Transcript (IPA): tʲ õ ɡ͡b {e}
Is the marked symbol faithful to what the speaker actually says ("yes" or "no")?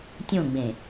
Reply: no